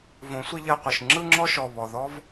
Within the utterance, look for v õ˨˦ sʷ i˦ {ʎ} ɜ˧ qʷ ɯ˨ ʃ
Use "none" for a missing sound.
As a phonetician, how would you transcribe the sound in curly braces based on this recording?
ʎ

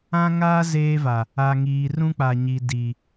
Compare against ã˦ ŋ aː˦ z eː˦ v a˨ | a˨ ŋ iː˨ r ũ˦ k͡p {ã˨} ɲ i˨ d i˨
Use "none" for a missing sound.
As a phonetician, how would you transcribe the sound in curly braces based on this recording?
a˨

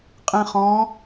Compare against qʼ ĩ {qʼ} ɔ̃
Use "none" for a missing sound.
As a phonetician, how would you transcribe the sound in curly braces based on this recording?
χ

